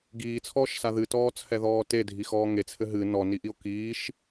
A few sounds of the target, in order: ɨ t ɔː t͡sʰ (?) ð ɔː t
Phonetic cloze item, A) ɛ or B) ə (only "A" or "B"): A